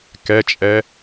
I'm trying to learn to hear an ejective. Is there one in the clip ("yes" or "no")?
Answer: yes